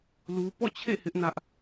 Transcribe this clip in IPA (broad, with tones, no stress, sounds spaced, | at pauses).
l u˦ p ɔ̰˦˨ t͡ɕʰ ḛ˦˨ h ɪ˦ ʔ n ä˦ ʔ